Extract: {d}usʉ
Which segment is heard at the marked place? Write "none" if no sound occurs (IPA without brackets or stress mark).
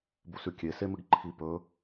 b